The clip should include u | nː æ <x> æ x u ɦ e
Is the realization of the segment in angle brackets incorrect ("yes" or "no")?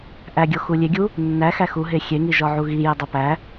no